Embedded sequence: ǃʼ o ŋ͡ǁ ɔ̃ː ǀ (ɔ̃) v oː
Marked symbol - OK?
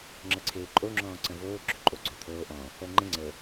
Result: no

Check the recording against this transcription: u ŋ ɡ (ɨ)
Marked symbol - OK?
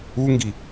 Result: no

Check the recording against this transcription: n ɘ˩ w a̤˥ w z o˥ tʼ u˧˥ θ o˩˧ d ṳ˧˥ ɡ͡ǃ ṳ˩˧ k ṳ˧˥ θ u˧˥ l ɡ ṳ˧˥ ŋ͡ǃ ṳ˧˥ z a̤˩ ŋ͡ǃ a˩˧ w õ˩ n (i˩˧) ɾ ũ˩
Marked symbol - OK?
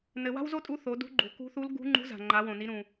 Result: yes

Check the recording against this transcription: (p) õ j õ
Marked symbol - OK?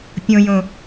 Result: no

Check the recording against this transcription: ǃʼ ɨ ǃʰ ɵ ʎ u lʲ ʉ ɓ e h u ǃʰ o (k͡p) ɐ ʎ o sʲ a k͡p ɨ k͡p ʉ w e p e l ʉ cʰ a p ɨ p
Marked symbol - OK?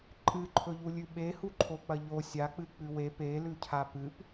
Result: yes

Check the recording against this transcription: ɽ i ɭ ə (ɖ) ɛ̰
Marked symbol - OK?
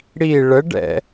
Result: yes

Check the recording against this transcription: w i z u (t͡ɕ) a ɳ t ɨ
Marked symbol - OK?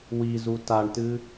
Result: no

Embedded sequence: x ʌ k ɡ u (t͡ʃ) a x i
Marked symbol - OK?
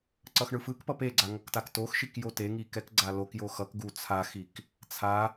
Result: no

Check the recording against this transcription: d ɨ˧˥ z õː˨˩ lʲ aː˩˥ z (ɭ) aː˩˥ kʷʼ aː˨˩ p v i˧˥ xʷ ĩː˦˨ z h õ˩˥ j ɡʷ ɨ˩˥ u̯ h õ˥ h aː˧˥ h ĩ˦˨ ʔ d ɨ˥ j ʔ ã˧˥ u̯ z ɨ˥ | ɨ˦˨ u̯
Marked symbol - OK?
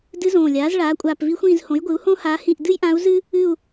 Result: yes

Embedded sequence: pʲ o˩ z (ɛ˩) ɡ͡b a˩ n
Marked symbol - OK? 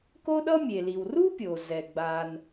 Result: yes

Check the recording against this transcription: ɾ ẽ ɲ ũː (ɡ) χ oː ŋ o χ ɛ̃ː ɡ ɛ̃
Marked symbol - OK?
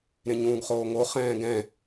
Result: yes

